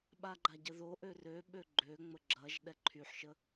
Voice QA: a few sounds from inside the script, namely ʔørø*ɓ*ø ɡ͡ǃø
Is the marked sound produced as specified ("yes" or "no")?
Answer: yes